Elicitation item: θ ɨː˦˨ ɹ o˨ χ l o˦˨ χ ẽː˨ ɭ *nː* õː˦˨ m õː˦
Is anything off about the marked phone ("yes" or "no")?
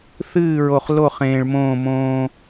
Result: yes